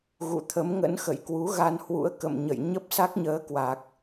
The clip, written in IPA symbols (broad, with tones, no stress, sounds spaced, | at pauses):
ɣ ṵ˧˨ t̪ʰ ə˨˦ m ŋ ə̰˧˥ n x ə̰˧˨ j k w u˨˦ ɣ a˧ n h w ṵ˧˥ ə̯ k ə̰˧˨ m ɲ ə̰˧˨ j ɲ ə˦˥ p̚ s a˦˥ k̚ ɲ əː˨˦ k w a˨˩ k̚